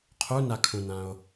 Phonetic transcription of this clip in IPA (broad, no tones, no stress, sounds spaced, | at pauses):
qʰ u n a kʰ ũ n ã o̯